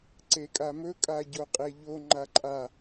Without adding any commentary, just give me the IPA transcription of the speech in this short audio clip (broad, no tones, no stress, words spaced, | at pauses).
ǀekʼamɵ kʼaɟoqʼeʎo ŋ͡ǃaǃʼa